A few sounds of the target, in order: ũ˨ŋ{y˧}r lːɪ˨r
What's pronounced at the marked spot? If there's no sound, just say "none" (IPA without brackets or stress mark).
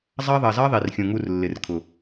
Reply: u˧